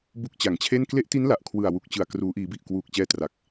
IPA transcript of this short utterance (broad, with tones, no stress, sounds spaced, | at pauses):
b u˥˩ k̚ t͡ɕ a˨˩ ŋ t͡ɕʰ e˥˩ n k l e˦˥ ʔ t i˦˥ n l a˨˩ ʔ kʰ w ɯ˨˩ a̯ w u˨˩ k̚ t͡ɕ ɯ˨˩ a̯ k r uː˩˦ ʔ iː˩˦ b i˨˩ ʔ k w uː˨˩ k̚ t͡ɕ ɛː˧ t r a˨˩ k̚